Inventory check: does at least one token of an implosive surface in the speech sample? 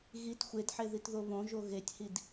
no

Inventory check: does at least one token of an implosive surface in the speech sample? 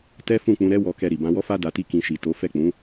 no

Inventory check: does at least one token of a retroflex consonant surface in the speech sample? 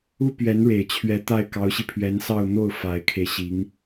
yes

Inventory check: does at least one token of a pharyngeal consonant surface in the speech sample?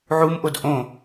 yes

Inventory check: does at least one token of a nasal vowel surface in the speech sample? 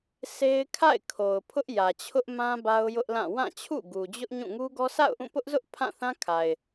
yes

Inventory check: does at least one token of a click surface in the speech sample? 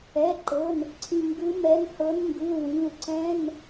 yes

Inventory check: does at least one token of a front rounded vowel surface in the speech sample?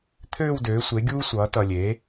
yes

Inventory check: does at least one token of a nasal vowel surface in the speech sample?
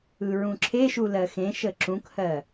yes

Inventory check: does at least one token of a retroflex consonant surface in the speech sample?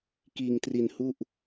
no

